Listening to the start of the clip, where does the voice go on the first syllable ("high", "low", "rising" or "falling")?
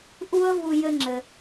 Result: high